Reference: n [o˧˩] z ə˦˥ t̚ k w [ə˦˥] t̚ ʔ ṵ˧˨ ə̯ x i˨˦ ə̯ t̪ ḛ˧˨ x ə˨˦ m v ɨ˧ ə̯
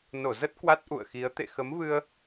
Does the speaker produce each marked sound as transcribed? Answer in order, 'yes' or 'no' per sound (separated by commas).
yes, no